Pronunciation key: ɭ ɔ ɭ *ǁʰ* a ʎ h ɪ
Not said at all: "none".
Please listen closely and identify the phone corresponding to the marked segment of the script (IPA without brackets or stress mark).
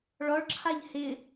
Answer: ǁʰ